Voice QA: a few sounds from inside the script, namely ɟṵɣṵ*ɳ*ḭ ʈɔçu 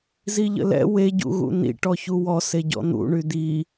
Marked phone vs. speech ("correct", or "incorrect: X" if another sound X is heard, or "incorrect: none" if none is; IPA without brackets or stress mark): incorrect: n̪